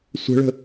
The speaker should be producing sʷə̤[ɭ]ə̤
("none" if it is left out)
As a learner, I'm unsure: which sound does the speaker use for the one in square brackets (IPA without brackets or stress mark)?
ɭ